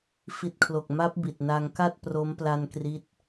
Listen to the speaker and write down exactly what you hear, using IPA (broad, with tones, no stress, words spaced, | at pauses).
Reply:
fi˨˩t̚kʰlo˨˩k̚ ma˦˥p̚ bi˨˩t̚na˧ŋka˥˩t̚ pro˦˥m pla˧n kri˦˥t̚